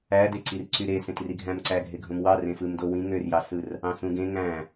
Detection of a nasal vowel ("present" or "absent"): present